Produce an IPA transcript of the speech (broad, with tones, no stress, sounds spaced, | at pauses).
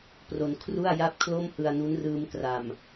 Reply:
p r o˧ n kʰ r u˥˩ a̯ j a˥˩ p̚ kʰ l o˥˩ m h ɯ˧ a̯ n u˦˥ n r ɯː˧ m k r a˨˩ m